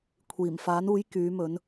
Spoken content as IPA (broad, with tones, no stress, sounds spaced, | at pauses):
kʷʰ iː˨˩ m f aː˨˥ n uː˨˥ j k yː˨˥ m ɵ˨˥ n